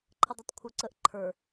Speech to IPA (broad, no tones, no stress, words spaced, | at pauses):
ǃʰədˤʌtˤkʷʰə˞ǀəʔ ǃʰə˞